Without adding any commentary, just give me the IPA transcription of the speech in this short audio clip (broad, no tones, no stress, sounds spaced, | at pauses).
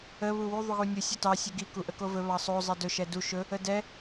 ə β u w u ðˤ u ɣ u nʲ u sʲ ɵ t ɑ sʲ u ɡ i k u ʔ ə k o v ɵ β ɑ sˤ o zˤ ɛ d ɵ ʃ ɛ d u ʃ ɵ | ə d ɛ